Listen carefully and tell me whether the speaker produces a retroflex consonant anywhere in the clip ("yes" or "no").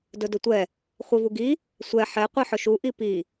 no